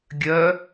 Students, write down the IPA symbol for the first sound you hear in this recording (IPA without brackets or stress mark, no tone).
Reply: ɡʲ